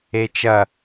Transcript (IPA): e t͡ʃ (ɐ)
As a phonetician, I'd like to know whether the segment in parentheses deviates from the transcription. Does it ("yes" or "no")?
no